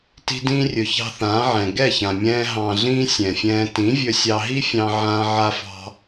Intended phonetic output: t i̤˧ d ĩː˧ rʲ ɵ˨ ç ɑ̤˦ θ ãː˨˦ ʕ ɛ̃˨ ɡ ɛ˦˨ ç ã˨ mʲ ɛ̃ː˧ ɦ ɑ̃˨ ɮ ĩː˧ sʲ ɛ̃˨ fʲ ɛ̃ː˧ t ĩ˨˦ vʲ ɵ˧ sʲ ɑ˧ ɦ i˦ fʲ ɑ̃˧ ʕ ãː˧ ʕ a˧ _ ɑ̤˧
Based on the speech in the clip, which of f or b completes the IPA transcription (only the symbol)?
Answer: f